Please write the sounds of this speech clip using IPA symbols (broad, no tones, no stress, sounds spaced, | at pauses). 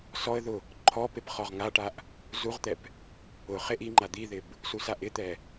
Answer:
s ɔ ə̯ ð ʊ | ǃʰ ɔ p e p χ ɔ ʁ ŋ a ʈ a ʔ | z u ʁ t̪ ɛ p | ʊ χ e ʔ i ŋ͡ǃ a d̪ i ð ɪ b | s u s a ʔ ɪ t̪ ɛ